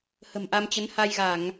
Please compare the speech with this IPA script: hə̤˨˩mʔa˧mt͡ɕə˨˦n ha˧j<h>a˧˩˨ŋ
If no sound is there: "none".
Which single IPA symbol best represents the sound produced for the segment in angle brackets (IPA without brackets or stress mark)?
ɣ